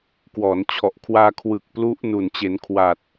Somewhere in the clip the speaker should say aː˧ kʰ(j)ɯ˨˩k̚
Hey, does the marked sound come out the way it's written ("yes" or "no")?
no